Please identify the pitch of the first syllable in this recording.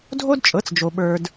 high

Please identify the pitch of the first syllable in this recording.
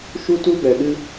high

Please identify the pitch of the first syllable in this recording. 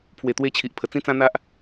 low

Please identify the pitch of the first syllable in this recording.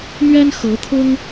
high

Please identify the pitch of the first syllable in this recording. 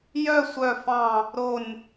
falling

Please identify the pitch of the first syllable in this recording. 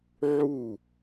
falling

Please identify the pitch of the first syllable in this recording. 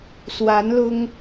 rising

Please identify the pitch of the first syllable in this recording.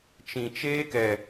low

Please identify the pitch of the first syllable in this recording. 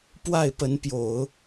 falling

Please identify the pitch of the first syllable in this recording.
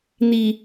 low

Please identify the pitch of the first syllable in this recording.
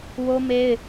high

